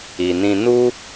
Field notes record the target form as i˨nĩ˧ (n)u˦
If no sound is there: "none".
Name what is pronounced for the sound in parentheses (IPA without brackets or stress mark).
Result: n